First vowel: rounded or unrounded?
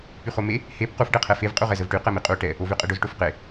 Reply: rounded